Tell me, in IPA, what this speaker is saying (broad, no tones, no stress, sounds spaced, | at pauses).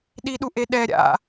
ɗ i ɗ u ʔ e ɗ ɛ ɾʲ a̰